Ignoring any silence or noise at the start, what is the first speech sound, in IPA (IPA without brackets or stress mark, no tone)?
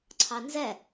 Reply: ǀʰ